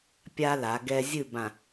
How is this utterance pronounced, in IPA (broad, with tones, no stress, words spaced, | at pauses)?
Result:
pʲa˦ la˨˦ɡɛ˦ zʲɨ˦˨bã˨